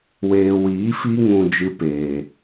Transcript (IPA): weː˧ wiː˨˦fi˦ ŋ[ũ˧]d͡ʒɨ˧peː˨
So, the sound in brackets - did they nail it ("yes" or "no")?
yes